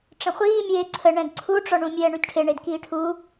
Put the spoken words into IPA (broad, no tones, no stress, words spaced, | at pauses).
ʈ͡ʂə̃χʷiː mʲeːǀʰəɳɛ̃d ǀʰuʈ͡ʂɔɳũmʲɛː ɳydʈʰe ɳedkiːʈʰu